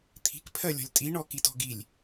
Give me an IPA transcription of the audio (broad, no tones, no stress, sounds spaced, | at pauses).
t̪ʰ i̤ k pʰ ɜ lʲ ɔ̤ lʲ tʼ i ɳ ɔ k i t ɔ̤ ɡ i lʲ